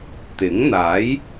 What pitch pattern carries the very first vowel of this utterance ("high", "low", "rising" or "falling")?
rising